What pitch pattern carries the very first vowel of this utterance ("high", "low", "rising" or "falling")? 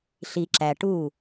low